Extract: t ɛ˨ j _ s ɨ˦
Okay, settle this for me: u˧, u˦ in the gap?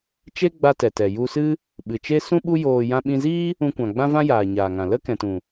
u˧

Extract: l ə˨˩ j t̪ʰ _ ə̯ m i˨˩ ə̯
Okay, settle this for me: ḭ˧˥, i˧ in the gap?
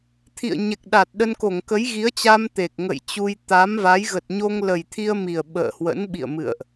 i˧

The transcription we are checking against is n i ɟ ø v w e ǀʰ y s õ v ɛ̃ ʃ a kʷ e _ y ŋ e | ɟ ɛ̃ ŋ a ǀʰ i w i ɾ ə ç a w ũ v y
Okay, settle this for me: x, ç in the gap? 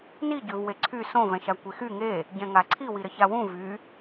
x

